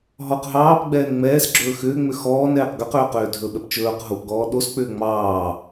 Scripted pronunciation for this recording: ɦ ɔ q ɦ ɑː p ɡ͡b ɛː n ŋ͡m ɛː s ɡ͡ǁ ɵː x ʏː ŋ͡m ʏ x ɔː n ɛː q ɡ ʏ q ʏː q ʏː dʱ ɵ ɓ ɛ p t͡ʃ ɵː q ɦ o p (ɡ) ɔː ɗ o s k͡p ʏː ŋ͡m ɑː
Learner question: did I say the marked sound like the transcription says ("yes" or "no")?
yes